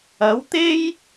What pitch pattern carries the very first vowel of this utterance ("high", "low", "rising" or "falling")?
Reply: rising